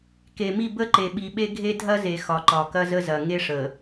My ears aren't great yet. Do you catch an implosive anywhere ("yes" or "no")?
yes